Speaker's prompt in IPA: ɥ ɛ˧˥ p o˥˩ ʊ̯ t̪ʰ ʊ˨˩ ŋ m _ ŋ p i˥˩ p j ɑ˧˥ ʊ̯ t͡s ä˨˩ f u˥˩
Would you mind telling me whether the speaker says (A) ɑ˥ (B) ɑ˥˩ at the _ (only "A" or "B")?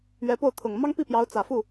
A